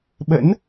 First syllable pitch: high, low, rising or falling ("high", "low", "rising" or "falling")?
rising